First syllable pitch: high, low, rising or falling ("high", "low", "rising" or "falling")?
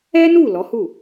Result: high